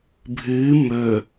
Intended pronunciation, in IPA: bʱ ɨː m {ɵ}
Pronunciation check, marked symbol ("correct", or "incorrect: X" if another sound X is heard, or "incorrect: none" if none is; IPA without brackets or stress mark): correct